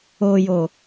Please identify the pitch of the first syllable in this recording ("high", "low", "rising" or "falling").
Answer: low